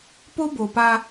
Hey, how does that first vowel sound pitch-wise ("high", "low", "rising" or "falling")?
high